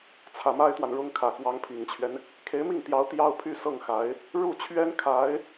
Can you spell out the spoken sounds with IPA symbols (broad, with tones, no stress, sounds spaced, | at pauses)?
t͡sʰ ä˨˩ m a˥ ɪ̯ t̪ w a˨ n ɻ ʊ˥ ŋ kʰ ä˨˩ k w ɑ˧˥ ŋ pʰ i˨˩ ŋ t͡ɕʰ ɥ ɛ˦ n | kʰ e˧˥ ɪ̯ m i˥˩ ŋ t̪ j ɑ˧˥ ʊ̯ t̪ j ɑ˥ ʊ̯ pʰ y˥˧ s ɤ˥˩ ŋ x a˧˥ ɪ̯ | ɻ u˥˩ t͡ɕʰ ɥ ɛ˥ n kʰ a˧˥ ɪ̯